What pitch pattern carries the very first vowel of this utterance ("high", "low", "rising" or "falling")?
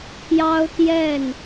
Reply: high